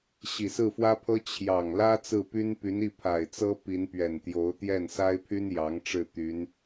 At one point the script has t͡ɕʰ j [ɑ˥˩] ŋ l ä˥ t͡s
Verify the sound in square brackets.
incorrect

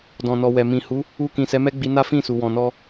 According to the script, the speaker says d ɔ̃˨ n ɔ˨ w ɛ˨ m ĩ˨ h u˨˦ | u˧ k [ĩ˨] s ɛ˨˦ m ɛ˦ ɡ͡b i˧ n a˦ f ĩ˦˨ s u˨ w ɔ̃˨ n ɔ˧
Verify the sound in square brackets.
correct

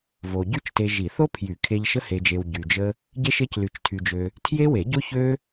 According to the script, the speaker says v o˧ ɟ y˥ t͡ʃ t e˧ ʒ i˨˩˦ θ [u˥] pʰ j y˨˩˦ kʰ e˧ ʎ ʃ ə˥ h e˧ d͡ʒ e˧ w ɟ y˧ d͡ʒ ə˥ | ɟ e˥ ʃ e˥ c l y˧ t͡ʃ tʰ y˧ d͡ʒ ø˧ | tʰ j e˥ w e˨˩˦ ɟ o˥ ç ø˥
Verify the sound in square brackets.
incorrect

